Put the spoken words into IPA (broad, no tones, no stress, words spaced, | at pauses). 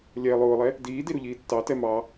lʲɛ lˠʊːlˠɛ | diːdiɾu ʎiːtːɑ tɛmɑ